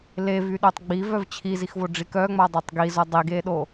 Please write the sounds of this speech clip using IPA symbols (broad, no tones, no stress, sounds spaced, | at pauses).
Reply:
l e v y ɗ o tˤ ɡ͡b i v œ v t͡ɕʰ i z i x v o ɖ͡ʐ i k œ ŋ͡m a dˤ œ tˤ ɡ i z o dˤ i ɡ e ɗ o